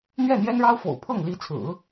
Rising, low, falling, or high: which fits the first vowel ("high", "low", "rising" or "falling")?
falling